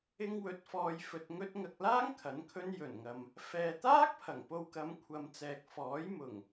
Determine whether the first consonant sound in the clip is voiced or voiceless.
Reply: voiced